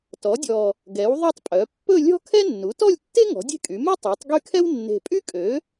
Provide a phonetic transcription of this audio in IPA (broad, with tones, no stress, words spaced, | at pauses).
tɔ˩˥dʲɔ˨˩ | ɡɛ˩˥w ðˤe˥tˤpʼœ˩˥ pːɵ˥˧ lʲɔ̤˥kʰɛ˥ nːu˩˥tɔ˥˧lʲtːe˥ ŋɔ̤˩˥dʲe̤˥kʼy˩˥ mɵ˥ tˤæ˩˥tˤɡy˥˧kʰɛ˥w nːe̤˨˩pʼy˥kʼø˩˥